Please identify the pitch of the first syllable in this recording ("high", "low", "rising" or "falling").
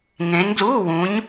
rising